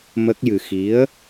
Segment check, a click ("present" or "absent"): absent